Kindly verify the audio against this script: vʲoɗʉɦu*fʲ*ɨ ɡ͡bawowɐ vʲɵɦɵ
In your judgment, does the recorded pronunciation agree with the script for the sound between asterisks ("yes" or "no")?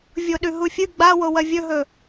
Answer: yes